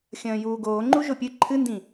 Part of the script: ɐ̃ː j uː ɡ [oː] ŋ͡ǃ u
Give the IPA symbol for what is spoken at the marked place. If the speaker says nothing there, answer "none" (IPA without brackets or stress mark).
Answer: oː